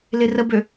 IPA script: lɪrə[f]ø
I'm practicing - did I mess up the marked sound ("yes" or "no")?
yes